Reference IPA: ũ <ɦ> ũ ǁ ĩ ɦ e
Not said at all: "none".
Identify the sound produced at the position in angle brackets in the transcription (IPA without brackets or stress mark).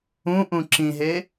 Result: ʔ